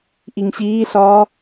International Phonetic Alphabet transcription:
ʔiŋɕiːɬɒː

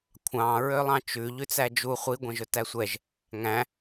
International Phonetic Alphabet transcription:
kʷʰɑ̃ ɹølˠɑ̃t͡ʃʉ ʎʉt͡sæd͡ʒu χʷi ɡʷɛ̃ʒɵtæsʷɛʒ | ŋæ̃

